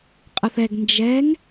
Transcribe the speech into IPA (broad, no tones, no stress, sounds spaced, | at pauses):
qʼ ə θ ɛ ɡ n d͡ʒ ɛ ŋ